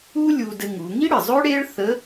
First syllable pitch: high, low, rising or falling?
high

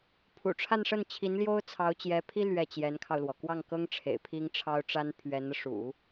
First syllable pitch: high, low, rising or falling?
low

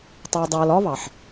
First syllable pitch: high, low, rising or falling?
low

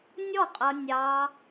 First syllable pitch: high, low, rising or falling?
falling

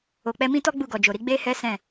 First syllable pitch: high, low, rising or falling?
low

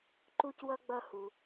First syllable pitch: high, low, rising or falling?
high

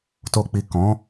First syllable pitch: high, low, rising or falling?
low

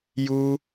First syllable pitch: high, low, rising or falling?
high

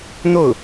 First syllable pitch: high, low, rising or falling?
falling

